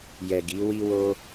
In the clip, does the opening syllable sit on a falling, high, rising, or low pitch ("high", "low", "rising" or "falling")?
low